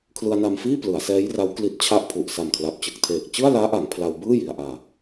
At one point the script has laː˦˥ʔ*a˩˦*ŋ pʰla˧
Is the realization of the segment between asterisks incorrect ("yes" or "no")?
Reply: no